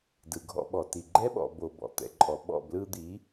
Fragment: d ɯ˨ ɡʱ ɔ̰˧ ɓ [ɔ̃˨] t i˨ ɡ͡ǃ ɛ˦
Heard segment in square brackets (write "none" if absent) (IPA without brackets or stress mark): ɔ˨